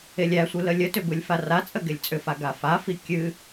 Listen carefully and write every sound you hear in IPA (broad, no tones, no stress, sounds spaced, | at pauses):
e lʲ æ sʷ ɨ l ə lʲ ə t ʏ b ɯ lʲ f a r a t͡sʼ ə ɡ e lʲ t͡sʼ ʏ f a ɡ a f a f i kʲ ɨ